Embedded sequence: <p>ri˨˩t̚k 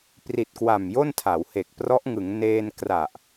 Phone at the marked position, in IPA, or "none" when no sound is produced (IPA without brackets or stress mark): p